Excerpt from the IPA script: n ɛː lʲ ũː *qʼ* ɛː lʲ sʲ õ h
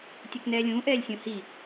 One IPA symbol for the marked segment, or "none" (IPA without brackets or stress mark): ʔ